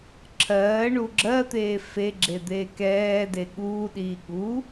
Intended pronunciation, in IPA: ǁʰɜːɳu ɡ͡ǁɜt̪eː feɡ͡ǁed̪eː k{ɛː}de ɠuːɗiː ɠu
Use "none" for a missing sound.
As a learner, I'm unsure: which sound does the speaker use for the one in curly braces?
ɛː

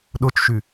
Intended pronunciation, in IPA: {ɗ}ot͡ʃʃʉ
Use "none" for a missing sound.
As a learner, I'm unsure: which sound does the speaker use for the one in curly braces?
ɗ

